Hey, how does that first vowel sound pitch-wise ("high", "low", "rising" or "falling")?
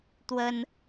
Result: high